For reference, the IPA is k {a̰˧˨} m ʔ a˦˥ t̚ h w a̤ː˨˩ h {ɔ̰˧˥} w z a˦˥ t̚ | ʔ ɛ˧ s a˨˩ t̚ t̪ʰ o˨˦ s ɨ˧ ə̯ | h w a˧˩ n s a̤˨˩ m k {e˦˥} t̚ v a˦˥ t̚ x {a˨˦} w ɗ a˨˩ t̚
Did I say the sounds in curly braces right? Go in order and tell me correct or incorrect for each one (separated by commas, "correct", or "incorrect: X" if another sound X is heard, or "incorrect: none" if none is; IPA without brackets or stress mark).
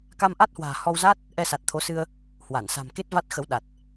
incorrect: a˧, incorrect: ɔ˧, correct, incorrect: ə˨˦